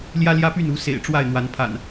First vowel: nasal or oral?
oral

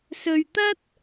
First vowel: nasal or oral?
oral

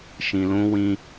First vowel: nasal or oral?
nasal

